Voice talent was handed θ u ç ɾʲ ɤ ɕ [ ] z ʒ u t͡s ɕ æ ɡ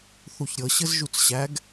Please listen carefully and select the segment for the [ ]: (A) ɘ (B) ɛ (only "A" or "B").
A